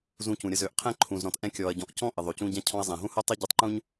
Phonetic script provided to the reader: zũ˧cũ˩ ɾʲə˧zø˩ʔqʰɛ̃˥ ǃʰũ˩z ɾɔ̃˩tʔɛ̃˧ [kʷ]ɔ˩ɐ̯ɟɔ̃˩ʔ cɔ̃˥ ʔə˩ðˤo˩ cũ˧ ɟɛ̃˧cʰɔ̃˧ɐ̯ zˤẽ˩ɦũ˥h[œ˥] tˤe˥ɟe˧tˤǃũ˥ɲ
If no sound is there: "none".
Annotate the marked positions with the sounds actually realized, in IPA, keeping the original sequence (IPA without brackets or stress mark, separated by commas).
kʲ, œ˥